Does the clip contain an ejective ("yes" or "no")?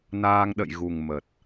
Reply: no